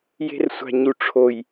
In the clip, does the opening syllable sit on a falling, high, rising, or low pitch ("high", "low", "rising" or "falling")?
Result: high